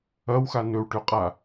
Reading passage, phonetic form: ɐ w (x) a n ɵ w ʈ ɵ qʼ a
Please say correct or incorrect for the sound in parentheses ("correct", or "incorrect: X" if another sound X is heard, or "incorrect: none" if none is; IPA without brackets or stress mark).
correct